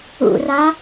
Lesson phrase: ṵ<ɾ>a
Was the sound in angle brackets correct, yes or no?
no